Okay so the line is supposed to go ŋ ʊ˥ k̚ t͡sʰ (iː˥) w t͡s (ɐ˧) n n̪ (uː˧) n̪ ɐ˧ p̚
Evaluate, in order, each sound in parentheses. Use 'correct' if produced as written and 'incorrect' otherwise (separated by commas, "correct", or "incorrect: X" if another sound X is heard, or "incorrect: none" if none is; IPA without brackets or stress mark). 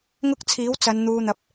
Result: incorrect: iː˨˥, incorrect: ɐ˨˧, correct